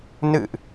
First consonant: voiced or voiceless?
voiced